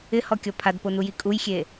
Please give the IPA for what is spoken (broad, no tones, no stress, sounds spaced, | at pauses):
ɪ h ɔ kʲ ɔ pʰ a d p o n u j i kʼ u j xʲ e